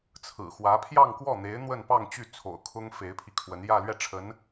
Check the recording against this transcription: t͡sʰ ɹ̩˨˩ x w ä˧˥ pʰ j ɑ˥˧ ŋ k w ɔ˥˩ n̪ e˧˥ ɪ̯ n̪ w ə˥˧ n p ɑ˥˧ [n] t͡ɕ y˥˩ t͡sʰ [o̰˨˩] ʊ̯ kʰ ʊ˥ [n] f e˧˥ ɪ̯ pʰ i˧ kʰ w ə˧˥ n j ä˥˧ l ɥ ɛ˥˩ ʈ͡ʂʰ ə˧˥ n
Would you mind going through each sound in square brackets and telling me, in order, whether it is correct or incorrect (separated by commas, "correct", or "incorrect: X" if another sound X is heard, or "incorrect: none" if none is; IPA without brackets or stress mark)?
incorrect: ŋ, correct, incorrect: ŋ